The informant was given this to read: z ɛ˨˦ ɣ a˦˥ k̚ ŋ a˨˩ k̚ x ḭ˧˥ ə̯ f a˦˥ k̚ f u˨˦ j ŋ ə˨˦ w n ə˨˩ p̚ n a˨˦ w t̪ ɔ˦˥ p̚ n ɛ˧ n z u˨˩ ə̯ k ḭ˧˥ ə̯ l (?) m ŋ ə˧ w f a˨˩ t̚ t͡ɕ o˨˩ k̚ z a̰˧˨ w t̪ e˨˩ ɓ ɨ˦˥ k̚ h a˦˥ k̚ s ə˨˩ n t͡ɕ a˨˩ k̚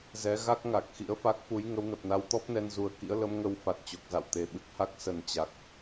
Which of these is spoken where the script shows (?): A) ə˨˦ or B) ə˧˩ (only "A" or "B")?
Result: A